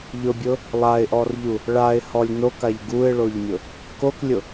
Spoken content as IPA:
ʎʊbʲʊ | lˠaɪ̯ʔɔrʎu | ɭaɪ̯hɔlʲ nokaʎ ɡuɪ̯ɭoʎmʲʊ | koklʲʊ

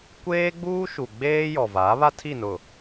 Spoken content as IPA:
kʷeː˦ɡ͡buː˦ ʃu˨ɡ͡beː˦ jɔ˨va˨˦ βa˦tʰi˦˨nʊ˨

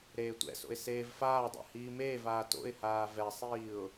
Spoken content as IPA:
ɾeːtʷɛ̰so̰ɪ̯ seːvfaːdˤɛ̰ hiːmeːvaː to̰ɪ̯haː vɛsˤiːʊ̯

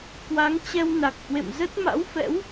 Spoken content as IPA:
kwa˨˦ŋt͡ɕɛ˧wna˨˩k̚hwḛ˧˨m zə˦˥t̚ma̰˧˥wfɛ̰˧˥w

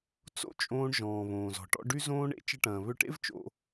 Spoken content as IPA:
t͡so̰˥t͡ʃʼõː˧ɳ ʒɔ̃ː˩ βõː˩zɔ̤˩ʈɔ̰˧ ɖy˧zõː˧ɳḛ˧ t͡ʃə˧ʈɐ̃ː˩ βʏ˧ʈḛ˥v t͡ʃo̰˧

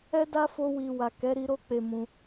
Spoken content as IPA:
ɛ˦da˦fo˧wi˨ wa˨kɛ˨˦ɾi˧ɾo˦ k͡pe˦˨mũ˧

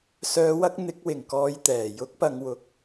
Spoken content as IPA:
sœː˨wɐ˧k̚ n̪ɪ˨˥k̚wɪ˨˩ŋ kɔː˨˧j t̪ɛː˨˩ jʊ˨˥k̚pɐ˨ŋwʊ˨k̚

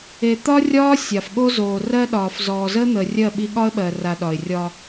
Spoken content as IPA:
e˨t̪ɒ˦rʲɒː˦ sʲa˨fɠo˦ zoː˨rɜ˦ɗɒː˨f zɔː˨zəː˦n̪əː˨rʲɜ˦˨ ɓi˦ ɠɒ˦ə̯ɓɜ˨ra˨ ɗɒ˨ɪ̯rʲɒ˦

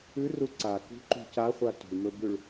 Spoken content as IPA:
ʉru ǀakṳǃṳ caχʷa tṳɭmɵbʉɭ

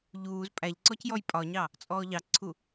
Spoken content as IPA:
ʎuːz pʼæʎ ǀɔcjɔjpʼɒɲɑ | t͡sʼɔːʎɑǀʰu

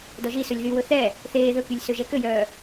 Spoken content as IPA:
dɔʒisɵlʲ ðywɵ θɛ | θeː ðɵkylʲ søʒɛkøjœː

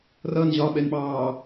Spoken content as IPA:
rʌn ʑɒɓɛnɓɑː

